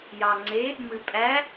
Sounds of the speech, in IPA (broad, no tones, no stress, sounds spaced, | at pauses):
j ɑ ŋ͡ǀ e | m ɨ pʼ æ